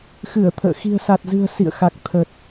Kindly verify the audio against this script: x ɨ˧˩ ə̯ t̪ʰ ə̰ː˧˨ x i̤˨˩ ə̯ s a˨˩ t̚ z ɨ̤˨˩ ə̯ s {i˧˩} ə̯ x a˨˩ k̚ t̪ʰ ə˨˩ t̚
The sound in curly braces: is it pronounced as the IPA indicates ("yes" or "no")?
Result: no